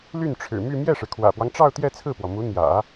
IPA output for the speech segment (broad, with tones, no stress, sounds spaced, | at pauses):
l y˥˩ n ʈ͡ʂʰ ɻ̩˨˩ m y˥˧ m j ɛ˥˩ ʂ ɻ̩˩ kʰ w ä̰˨˩ p w ɑ˦ ŋ ʈ͡ʂ ɑ˥˧ ʊ̯ t̪ j ɛ˥˧ t͡sʰ ɹ̩˥˩ p w ɔ˩ m u˧˥ n̪ j ä̰˨˩˦